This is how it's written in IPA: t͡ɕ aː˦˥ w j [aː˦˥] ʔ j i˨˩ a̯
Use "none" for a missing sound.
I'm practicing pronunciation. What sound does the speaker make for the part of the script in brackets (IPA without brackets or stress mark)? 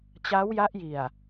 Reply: a˦˥